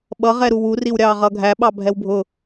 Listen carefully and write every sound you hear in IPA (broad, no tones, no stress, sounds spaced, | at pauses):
ɓ ʌ ʁ ɛ ɾ u w u r i w ɾʲ ɑ ʁ ʌ ɡʱ æ ɓ ɑ bʱ ɛ w bʱ ʊ